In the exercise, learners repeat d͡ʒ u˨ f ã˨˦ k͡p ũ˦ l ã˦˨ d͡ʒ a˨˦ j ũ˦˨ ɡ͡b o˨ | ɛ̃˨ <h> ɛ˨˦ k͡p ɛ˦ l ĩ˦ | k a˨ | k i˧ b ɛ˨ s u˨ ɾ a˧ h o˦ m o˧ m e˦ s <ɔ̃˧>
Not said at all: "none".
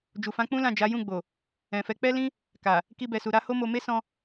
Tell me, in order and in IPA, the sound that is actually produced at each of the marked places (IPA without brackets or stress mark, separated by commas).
f, ɔ̃˧